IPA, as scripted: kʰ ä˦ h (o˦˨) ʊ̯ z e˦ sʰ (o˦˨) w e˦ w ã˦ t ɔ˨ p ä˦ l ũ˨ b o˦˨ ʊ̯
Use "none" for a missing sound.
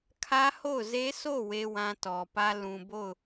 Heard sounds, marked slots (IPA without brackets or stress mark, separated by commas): o˦˨, o˦˨